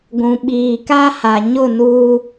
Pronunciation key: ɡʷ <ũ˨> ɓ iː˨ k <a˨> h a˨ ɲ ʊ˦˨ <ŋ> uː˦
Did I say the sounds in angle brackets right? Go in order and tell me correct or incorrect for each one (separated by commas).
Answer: correct, incorrect, incorrect